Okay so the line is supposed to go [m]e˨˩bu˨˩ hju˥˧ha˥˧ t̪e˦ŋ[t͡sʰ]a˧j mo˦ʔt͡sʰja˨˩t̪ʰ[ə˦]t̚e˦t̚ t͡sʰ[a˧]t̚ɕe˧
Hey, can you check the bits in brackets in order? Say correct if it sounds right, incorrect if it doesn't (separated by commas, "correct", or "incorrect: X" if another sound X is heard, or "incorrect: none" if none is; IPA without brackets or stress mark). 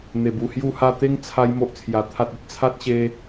incorrect: n̪, correct, incorrect: a˦, incorrect: a˦